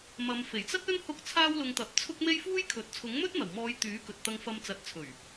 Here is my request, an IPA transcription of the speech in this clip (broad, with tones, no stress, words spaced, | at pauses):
mɐ˨˧m fe˨˩jt͡sɐ˥t̚ɵ˥n hʊ˥k̚ t͡sʰaː˥wlʊ˧ŋt̪ɐ˨˥p̚ t͡sʰʊ˥k̚ me˥jfuː˥jkʰɵ˨˥t̚ t͡sʰʊ˨˥ŋmɵ˥t̚n̪ɐ˨˩wmɔː˨˧j t̪yː˨˥ kɵ˨t̚t̪ɐ˧ŋfɐ˧m t͡sɐ˨˥t̚t͡sʰɵ˨˩ɥ